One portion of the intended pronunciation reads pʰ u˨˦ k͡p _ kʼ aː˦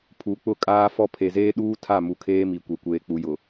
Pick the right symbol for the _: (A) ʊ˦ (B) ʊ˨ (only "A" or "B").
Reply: A